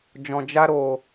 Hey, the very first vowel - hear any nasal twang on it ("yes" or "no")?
yes